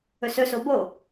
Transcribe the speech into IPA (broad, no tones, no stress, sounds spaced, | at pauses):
ɵ s ɵ s o b o